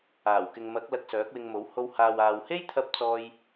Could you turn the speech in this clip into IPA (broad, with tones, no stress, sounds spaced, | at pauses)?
aː˨˩ w k ɪ˨ ŋ m ɐ˨˥ k̚ l ɐ˧ k̚ s œː˨˥ k̚ w ɪ˧ ŋ m o˨˥ w h o˧ w h aː˨ w aː˨ w h e˥ j t̪ʰ ɐ˥ p̚ t͡s ɔː˥ j